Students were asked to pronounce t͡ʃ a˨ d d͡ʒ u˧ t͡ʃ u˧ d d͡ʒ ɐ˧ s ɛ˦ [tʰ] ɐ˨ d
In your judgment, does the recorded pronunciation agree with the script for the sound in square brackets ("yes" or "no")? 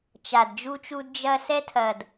yes